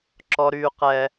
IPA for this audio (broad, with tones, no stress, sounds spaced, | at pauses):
ǁ ɔ˦ ɾ yː˦ q ɛ˦